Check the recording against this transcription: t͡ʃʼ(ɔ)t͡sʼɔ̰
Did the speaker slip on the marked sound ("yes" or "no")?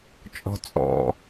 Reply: yes